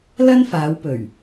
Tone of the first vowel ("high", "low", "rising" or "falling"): high